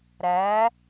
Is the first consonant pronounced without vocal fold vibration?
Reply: no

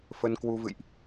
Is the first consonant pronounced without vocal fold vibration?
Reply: yes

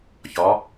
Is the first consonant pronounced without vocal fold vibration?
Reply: yes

